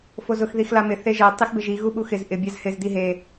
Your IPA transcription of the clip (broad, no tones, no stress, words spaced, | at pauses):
fozʊx ðixlamɪ θeʒɛ tˤixbɪʒi ɣuɓuxɪz ʔɪ bʲazhɪz diɦe